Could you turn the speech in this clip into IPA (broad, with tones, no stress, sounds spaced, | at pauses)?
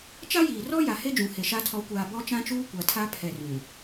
t͡ʃ a˦ j iː˨ r ɔ˦ j a˨ h e˦ d͡ʒ ũ˨ h e˨ ʃ a˦˨ tʰ ɔ˨˦ kʷ aː˨ b ɔ˦ t͡ʃ ã˦ t͡ʃ uː˦ kʷ a˨ tʰ a˦ pʰ ɛ˨ r ũ˨